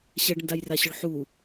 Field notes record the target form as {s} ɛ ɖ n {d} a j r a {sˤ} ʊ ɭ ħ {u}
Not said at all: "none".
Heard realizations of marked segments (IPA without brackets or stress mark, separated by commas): ɕ, d, ɕ, u